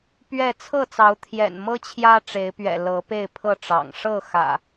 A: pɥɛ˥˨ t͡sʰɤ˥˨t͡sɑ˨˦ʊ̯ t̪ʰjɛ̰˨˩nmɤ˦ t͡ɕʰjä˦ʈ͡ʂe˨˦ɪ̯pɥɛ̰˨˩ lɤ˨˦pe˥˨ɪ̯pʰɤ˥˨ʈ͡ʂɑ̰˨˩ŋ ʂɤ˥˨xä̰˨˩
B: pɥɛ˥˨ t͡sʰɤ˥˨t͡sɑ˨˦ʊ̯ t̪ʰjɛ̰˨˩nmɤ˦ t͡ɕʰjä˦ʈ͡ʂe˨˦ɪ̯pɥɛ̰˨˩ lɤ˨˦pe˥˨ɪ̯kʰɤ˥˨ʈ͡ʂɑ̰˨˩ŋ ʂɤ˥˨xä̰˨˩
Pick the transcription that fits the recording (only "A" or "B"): A